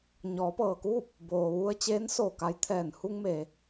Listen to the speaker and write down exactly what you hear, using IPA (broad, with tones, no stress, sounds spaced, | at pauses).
ɲ ɔː˩˧ p ɤː˩ k uː˥˨ p̚ | b oː˩ ʋ u˧ ə̯ t͡ɕ eː˧˥ n s oː˧˩ k a˧ j t̪ʰ ɛː˧˩ n h u˧ ŋ m eː˩